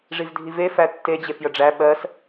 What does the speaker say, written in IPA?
ʐ i v dʱ i v e f æ tː e d͡ʑ e f j ə ɖ͡ʐ æ ɓ ɜ s

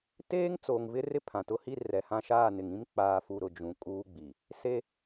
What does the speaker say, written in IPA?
t eː˦ ŋ t͡s oː˨ ŋ v ɪ˦ r ɪ˦ pʰ ã˨ t ʊ˦ h i˦ r ɛ˨ h ã˦ ʃ aː˦˨ n ɪ˨ ŋ ĩ˦ m k͡p aː˦ f u˦ ɾ ʊ˨ d͡ʒ ũ˨ kʼ uː˦ ɡ͡b i˨ | s e˦

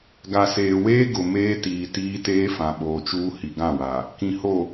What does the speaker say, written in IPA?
ɡ a˨ s eː˨ w eː˦ ɡ ʊ˨ m eː˦ t iː˨ t iː˦ t eː˦ f ã˨ ɓ oː˨ t͡ʃ uː˦ h i˨ ɡ ã˦˨ w a˨ | k ĩ˨ h o˨

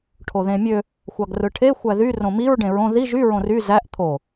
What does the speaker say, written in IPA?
ʈʰ o ð ẽ mʲ ø | xʷ ɑ ɡ r ɯ ʈʰ e xʷ æ ð y r õ m i ɹ ɖ ẽ ɹ õ ð i ʒ y ɹ õ r y z æ ʔ t̪ʰ o

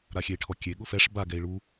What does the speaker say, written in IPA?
ɾ a xʲ e i̯ ʈʰ ɔ kʲ e ɠ ʊ f ɛ ʂ b a ɡ ɛ i̯ ɭ u

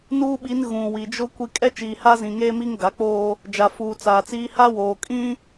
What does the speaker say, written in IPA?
n uː˦ ɓ i˨˦ n ɣ ũ˨ w i˨ d͡ʒ ʊ˦ kʷ i˦ kʼ ɛ˦ t͡ʃ iː˨ h a˦ z ĩ˨ ŋ eː˦ m i˦ ŋ ɡ a˨˦ k͡p oː˦ | d͡ʒ a˨ f uː˨ t͡s aː˨ t͡s iː˦ h a˦ w oː˨ kʼ ĩ˦

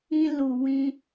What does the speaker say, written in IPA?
ĩ˧ l u˨ w ĩ˧

